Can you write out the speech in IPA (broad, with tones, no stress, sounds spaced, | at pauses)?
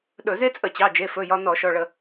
ɗ ɵ˧˩˧ z e˥ t͡sʼ ə˧˩˧ t͡ɕ ɑ˩˧˩ d͡ʒ e˩˧˩ f ɵ˩˧˩ j ɒ˧ n ɔ˧˩˧ ʃ ɔ˩˧˩ ɭ ə˧˩˧